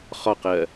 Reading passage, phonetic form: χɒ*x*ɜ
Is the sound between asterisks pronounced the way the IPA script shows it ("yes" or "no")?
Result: no